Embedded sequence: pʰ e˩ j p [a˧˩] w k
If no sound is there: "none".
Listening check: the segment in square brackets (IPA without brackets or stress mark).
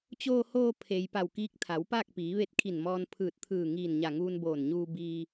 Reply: a˧˩